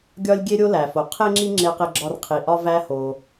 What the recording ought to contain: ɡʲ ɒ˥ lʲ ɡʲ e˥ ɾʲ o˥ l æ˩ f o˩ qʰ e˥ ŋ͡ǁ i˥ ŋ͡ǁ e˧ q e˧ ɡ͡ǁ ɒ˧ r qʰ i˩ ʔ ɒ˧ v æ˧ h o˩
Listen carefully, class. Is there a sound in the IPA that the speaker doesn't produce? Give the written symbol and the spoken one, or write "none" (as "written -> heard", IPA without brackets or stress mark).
none